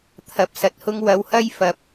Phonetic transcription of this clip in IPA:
t̪ʰ ɐ˨˥ p̚ s ɐ˨ t̚ h ʊ˥ ŋ w ɐ˨˧ w h ɐ˥ j f ɐ˨˥ p̚

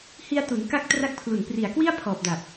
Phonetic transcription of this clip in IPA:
h i˧ a̯ t u˩˦ n k a˦˥ k̚ t r a˦˥ k̚ pʰ l u˨˩ n p r i˨˩ a̯ k w i˥˩ a̯ pʰ ɔː˨˩ p̚ d a˨˩ p̚

